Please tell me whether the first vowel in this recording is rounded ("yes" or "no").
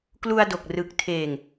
yes